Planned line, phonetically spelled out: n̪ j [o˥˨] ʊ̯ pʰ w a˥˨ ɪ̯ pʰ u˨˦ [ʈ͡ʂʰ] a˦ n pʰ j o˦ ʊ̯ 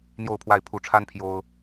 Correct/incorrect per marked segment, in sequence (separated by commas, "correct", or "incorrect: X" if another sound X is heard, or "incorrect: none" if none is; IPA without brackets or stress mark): correct, correct